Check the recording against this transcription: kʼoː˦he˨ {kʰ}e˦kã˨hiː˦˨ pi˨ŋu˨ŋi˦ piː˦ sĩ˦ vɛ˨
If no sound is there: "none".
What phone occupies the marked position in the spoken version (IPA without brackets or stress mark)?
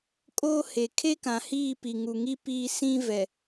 kʰ